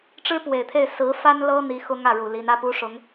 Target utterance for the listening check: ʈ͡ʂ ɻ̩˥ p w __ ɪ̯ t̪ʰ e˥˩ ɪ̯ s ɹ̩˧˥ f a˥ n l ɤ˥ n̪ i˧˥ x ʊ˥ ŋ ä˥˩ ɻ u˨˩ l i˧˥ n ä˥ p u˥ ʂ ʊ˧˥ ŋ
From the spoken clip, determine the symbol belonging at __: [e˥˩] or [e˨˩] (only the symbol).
e˨˩